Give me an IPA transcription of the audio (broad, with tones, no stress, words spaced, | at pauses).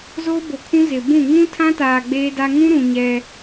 zoː˦bo˨kʰũ˦ zɪ˨bũ˦˨ ŋũ˦tʰã˦taː˨ ɡ͡beː˦da˦ ŋũ˦ɾũ˨ ɲɛ˦